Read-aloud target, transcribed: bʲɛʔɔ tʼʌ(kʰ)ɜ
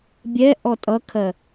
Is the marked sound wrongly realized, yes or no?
no